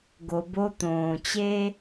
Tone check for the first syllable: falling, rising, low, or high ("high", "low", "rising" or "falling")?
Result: low